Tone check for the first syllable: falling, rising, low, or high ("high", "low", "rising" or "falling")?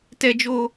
high